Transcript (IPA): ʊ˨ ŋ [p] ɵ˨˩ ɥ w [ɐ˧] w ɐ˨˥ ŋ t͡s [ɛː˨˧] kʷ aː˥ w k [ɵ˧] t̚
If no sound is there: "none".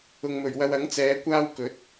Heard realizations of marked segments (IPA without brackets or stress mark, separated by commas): m, ɐ˧, ɛː˨˧, ɵ˨˥